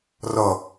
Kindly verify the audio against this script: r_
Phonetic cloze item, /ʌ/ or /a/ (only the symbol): ʌ